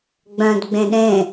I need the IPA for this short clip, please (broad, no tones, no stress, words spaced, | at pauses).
ɡ͡bœ̃dɡ͡bẽ ɗẽ